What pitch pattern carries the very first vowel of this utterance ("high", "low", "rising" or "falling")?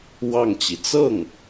falling